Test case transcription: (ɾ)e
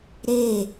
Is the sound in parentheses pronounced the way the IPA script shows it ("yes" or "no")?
yes